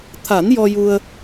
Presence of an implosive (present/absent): absent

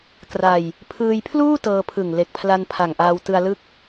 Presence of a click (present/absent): absent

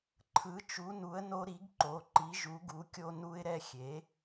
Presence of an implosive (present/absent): absent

